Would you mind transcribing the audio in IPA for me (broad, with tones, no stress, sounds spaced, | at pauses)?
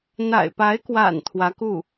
n̪ a̰˨˩ ɪ̯ p a˧˥ ɪ̯ k w a̰˨˩ n t̪ʰ w ä˧˥ k u˥˩